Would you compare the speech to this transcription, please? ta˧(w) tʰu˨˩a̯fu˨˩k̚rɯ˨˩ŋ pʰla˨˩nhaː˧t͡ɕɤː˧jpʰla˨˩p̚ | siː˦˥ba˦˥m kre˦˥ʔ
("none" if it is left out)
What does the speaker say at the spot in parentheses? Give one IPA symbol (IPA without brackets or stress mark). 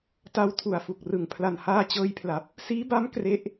w